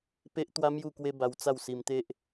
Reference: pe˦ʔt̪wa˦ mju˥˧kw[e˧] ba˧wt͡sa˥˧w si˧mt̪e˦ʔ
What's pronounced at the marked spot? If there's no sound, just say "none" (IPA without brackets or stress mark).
e˦